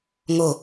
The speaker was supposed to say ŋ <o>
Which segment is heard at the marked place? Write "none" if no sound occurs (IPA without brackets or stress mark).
o